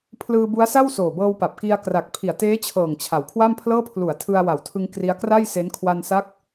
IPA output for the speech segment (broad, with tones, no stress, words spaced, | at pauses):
pʰlɯː˧bu˦˥a̯sa˥˩w soː˨˩bɤː˧wpa˨˩p̚ki˧a̯ kra˨˩k̚ pʰi˨˩a̯teː˦˥t͡ɕʰɤː˨˩ŋ t͡ɕʰa˨˩wkʰwa˥˩mpʰlɤː˥˩ pʰlu˩˦a̯ tʰɯ˧a̯wa˨˩wtʰɯ˧ŋ kri˦˥a̯ kra˥˩jse˦˥n kʰwa˧nsa˦˥k̚